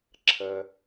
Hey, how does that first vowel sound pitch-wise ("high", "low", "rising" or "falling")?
low